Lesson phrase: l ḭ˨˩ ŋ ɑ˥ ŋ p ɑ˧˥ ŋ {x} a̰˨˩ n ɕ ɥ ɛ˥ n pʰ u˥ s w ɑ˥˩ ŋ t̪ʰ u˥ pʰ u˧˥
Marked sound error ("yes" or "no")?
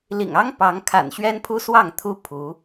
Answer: yes